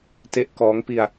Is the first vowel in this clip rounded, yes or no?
no